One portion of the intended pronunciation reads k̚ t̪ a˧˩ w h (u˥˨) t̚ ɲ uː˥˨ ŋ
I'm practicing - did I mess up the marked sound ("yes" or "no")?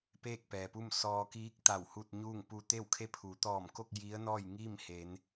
no